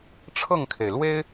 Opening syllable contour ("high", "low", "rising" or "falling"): falling